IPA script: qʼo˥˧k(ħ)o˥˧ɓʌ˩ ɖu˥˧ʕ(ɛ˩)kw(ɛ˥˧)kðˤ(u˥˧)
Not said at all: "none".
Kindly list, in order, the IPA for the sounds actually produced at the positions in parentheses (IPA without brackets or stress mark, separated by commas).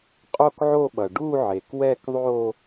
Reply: ʕ, e˩, ɛ˥˧, o˥˧